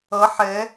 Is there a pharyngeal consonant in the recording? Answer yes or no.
yes